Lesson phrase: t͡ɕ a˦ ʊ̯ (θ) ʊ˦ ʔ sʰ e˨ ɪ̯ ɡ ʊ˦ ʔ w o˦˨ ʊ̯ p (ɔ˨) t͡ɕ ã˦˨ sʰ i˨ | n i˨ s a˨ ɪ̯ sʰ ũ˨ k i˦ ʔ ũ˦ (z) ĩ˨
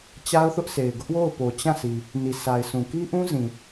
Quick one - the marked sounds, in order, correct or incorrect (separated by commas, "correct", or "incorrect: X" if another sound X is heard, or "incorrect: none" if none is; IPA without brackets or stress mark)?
correct, incorrect: o˨, correct